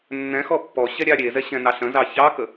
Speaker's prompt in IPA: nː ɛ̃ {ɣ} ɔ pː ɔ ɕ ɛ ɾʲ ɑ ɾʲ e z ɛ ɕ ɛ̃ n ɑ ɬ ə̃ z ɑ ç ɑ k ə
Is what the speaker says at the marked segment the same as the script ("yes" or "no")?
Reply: no